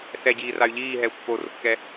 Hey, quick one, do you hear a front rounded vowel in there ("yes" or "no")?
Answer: yes